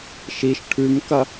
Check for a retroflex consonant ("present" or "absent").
present